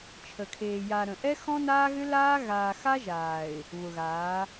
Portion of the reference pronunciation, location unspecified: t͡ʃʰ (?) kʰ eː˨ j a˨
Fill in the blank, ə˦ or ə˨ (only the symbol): ə˨